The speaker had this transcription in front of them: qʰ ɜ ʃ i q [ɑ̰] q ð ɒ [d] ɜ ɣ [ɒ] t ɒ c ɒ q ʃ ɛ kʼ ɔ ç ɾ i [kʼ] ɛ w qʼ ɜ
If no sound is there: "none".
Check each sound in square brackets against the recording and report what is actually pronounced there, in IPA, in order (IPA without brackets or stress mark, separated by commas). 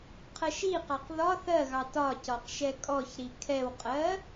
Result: ɑ, θ, ɑ, kʰ